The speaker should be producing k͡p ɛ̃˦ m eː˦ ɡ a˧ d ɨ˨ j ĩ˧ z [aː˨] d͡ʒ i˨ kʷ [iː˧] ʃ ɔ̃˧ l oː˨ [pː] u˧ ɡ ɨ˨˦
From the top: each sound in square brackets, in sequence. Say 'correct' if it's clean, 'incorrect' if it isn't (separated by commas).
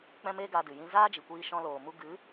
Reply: incorrect, correct, incorrect